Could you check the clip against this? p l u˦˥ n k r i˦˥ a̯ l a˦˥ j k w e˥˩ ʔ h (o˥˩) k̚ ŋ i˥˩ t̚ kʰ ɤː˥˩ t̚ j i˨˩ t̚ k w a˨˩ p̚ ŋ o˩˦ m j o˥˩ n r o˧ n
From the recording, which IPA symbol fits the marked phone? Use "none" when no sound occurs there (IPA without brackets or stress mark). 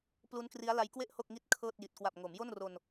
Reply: o˥˩